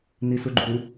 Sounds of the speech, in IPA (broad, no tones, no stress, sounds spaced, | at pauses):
n i s u ɡ͡ǃ u